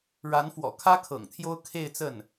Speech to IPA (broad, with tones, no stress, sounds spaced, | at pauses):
ɻ a˧˥ n f w ɔ̰˨˩ kʰ ä˥ kʰ ɤ̰˨˩ ŋ t̪ʰ j o˥ ʊ̯ kʰ e˥˧ ɪ̯ t͡s ə˥˩ n